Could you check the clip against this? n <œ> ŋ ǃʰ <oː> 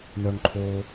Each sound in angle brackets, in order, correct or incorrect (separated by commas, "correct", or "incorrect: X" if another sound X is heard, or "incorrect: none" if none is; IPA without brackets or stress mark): correct, correct